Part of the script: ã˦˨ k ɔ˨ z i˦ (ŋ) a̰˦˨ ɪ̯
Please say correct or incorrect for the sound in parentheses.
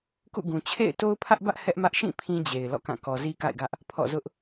incorrect